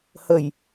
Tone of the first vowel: low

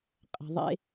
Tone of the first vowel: low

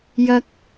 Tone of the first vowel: high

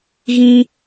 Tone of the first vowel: high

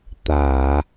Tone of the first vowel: low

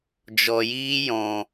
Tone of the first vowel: low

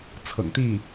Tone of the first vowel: low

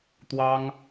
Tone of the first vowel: high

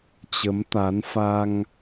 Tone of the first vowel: rising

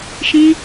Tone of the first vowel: high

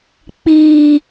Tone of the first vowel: high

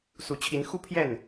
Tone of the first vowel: rising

